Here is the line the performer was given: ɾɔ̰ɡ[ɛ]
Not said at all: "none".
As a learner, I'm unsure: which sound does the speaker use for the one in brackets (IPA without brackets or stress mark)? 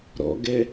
ɛ